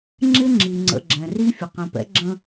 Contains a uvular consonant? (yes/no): yes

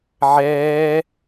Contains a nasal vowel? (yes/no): no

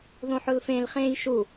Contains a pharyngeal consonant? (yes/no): yes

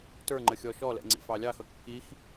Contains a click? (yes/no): yes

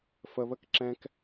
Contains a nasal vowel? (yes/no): yes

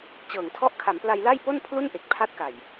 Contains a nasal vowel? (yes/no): no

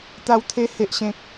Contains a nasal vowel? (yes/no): yes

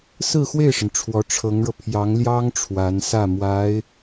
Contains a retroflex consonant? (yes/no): yes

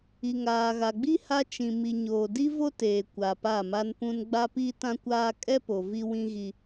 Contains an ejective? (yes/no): yes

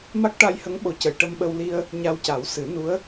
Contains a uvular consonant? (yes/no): no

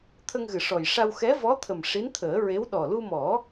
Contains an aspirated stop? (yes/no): yes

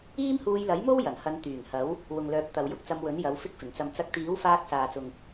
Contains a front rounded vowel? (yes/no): yes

